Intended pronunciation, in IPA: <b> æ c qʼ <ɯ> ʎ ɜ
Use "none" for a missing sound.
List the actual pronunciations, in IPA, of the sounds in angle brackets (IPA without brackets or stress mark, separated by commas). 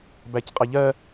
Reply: b, ə